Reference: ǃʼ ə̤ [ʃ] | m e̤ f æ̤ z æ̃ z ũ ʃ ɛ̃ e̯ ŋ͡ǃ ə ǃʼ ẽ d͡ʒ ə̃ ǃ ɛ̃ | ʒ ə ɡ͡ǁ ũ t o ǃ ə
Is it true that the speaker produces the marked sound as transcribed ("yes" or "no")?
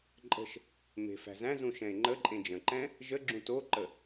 yes